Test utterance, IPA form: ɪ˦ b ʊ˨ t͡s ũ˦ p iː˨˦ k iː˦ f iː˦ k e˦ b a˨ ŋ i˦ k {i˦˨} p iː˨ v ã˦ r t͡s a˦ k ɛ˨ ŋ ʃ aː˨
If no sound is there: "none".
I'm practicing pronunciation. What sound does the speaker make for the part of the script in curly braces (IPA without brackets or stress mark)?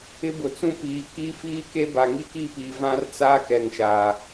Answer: i˦˨